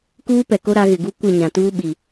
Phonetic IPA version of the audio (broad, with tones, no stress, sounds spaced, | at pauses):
k uː˦ p ɛ˨ k o˦ ɾ a˨˦ ɣ ɪ˨ ɡ u˦ kʷ ɪ˦˨ ɲ ã˨ t uː˦ ɓ i˨